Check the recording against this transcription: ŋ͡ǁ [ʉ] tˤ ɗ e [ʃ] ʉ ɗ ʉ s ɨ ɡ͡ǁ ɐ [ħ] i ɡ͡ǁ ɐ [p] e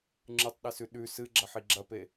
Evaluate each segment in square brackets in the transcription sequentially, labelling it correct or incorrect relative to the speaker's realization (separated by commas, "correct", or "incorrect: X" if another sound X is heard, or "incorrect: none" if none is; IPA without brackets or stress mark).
incorrect: ɨ, incorrect: s, correct, correct